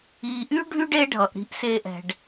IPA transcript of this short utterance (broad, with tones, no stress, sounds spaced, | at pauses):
i˨ ʔ y˥ ɖʱ y˥ ɖ e˦ ɖʱ ʌ˩ ʔ ɾ i̤˨ ʔ s e˨ ʔ ɛ̤˩ ɖ